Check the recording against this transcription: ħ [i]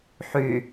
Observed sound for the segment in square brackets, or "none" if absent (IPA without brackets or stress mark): y